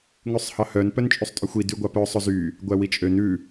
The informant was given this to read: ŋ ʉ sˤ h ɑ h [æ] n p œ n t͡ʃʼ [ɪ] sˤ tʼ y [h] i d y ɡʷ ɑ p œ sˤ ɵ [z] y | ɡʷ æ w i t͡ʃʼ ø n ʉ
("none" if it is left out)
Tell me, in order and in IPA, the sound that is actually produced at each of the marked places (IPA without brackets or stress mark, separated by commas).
œ, y, xʷ, z